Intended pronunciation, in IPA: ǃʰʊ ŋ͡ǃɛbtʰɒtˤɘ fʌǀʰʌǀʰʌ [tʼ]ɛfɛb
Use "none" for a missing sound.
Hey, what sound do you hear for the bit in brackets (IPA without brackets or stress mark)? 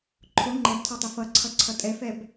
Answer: tʼ